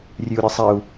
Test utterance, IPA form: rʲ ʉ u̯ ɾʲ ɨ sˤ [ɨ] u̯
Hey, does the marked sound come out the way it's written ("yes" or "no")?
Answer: no